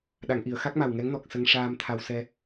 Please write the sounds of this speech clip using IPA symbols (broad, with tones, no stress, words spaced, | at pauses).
ɗa˨˩˨ŋʔi˨˩˨ə̯xa˦˥k̚ma˨˩w ŋɛ˧˥ŋnɔ˨˩k̚ sə˧ŋʂaː˧mt̪ʰa˧w sɛ˧